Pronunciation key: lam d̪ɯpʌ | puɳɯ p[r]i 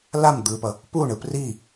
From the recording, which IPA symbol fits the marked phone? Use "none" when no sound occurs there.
r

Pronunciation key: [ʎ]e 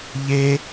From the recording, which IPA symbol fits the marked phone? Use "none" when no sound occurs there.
ʎ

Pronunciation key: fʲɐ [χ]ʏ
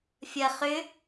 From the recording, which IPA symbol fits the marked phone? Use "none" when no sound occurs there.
χ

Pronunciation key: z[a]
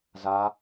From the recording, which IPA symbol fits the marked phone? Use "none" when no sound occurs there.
a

